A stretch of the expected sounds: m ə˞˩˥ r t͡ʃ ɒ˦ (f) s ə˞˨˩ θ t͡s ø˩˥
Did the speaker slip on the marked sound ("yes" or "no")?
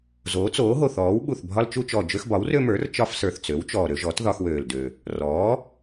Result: no